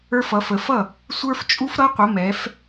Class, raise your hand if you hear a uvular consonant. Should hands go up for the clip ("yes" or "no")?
yes